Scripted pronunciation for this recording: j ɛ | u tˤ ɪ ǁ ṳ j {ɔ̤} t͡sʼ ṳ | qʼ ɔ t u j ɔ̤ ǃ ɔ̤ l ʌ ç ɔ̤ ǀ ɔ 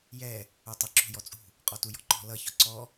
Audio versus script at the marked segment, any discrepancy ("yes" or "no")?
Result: yes